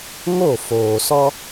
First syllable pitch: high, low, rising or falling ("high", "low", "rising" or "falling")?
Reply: falling